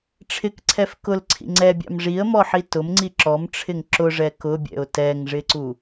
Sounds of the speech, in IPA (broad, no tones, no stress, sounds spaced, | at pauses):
ʈ͡ʂʰ ɪ k ǀʰ ɛ f k ʊ l ǀʰ ḭ ŋ͡ǀ ɛ bʲ ɑ̰ m ʐ i ə̯ m ɔ ħ i t ʊ m ŋ͡ǀ i ǁ ɔ m ʈ͡ʂʰ ɪ ŋ ǁ ʊ ʐ ɛ k ʊ bʲ ɛ̰ ʊ̯ t ɛ ŋ ʐ ɪ ǀ u